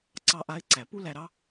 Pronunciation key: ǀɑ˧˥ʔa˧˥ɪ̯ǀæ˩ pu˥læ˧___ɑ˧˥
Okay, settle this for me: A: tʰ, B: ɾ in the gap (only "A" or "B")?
B